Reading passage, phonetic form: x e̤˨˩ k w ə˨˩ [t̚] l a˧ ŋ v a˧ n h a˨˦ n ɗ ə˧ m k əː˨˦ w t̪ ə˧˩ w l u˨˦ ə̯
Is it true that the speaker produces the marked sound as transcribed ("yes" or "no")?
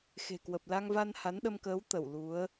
no